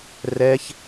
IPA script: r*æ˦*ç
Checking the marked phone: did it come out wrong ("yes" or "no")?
yes